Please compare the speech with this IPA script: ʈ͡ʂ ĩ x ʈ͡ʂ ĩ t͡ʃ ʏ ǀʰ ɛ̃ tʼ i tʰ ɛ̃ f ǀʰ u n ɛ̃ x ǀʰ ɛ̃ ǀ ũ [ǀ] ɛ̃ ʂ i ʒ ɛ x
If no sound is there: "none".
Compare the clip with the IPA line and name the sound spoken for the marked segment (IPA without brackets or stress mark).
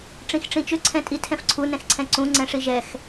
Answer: ŋ͡ǀ